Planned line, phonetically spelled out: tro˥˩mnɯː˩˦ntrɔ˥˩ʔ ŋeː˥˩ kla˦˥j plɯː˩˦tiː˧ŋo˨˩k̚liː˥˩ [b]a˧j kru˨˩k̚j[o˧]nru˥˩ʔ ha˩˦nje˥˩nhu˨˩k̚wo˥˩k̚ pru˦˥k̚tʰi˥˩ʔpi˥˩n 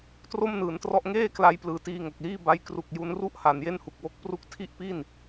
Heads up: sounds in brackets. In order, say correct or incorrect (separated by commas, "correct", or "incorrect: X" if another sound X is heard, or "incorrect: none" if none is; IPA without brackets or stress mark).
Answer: correct, incorrect: u˧